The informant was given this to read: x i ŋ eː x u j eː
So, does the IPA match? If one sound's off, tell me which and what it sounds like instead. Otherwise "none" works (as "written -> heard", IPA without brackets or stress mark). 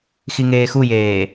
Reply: none